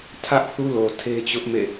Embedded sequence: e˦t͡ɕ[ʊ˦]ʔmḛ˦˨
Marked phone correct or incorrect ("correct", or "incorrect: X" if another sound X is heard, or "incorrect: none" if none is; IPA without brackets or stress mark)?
correct